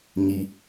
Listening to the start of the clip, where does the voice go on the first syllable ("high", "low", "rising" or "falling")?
low